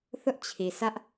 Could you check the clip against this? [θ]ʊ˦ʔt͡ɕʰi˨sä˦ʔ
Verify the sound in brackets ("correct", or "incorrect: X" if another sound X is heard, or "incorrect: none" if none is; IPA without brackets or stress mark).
correct